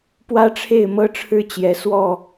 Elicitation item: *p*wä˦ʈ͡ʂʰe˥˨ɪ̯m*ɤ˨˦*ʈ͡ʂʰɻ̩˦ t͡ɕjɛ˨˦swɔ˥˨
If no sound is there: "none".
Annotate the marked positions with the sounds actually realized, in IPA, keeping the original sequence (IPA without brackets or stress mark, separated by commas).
p, ɤ˦